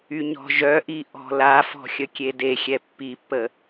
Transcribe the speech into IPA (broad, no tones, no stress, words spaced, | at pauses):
yɲɔ̤ʒœʔi ʔɔ̤lafɔ̤ xʲəkʲedexʲɛ pːipːə